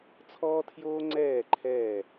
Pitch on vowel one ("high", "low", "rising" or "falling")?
high